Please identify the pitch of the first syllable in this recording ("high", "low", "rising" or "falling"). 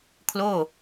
falling